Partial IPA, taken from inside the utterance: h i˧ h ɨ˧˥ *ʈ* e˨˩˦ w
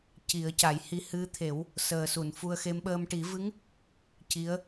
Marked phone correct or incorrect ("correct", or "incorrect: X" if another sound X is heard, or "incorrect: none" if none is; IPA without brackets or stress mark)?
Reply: incorrect: t̪ʰ